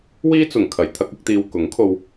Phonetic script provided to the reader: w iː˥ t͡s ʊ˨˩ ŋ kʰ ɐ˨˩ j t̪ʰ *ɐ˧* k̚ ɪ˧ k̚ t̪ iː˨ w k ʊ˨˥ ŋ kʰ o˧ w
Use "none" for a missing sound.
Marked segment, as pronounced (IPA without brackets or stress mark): ɐ˧